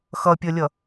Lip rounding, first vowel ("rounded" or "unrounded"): unrounded